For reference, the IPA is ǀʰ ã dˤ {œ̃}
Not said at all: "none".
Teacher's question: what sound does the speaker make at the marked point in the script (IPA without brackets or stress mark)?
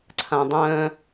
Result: œ̃